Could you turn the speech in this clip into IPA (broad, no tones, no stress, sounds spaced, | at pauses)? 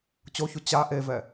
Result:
t͡ɕ o ç u t͡ɕ a ʔ e v ɛ